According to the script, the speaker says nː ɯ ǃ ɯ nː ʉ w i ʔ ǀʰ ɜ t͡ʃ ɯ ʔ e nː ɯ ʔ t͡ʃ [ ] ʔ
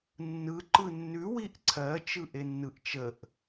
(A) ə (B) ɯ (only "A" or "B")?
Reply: A